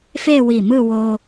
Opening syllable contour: falling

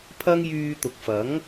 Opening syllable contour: high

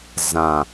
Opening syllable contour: low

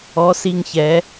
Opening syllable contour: rising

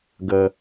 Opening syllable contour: low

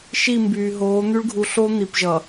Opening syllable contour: falling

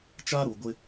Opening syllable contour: high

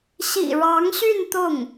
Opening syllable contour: low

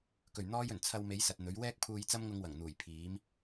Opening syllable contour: low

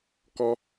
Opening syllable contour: high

